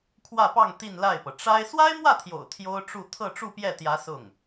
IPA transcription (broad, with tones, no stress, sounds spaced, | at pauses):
kʰ w ä˥˧ p ɑ˥˧ ŋ t̪ i˥˧ n l a˥˩ ɪ̯ p ɤ˩ ʈ͡ʂ a˥ ɪ̯ s w a˥ ɪ̯ m w ä˥˩ t̪ʰ j o̰˨˩ ʊ̯ t̪ʰ j o˥ ʊ̯ ʈ͡ʂ u˥˧ t̪ʰ ɤ˥˧ ʈ͡ʂ u˥˧ p j ɛ˥˩ t̪ j ä˧˥ s ʊ˥˩ ŋ